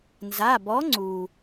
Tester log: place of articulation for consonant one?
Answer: alveolar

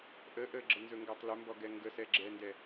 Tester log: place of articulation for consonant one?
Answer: glottal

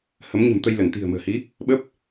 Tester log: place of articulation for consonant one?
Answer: glottal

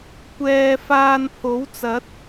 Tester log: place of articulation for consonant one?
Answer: velar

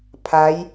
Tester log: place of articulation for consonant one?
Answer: labial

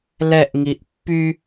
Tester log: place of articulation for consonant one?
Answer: alveolar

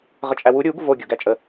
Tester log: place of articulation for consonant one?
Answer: uvular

